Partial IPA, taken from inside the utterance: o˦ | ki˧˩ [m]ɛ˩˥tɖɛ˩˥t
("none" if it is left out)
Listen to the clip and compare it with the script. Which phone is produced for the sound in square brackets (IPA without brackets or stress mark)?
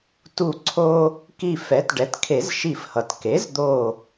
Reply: f